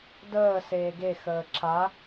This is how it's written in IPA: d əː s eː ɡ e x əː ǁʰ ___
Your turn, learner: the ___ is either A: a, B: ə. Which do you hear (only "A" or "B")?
A